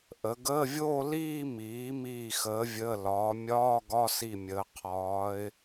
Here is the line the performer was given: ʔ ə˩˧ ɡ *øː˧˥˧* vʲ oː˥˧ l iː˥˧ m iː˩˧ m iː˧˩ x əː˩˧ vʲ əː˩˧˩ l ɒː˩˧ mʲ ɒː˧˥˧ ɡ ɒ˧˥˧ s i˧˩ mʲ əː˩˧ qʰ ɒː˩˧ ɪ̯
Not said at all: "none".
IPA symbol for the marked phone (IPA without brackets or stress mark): əː˧˥˧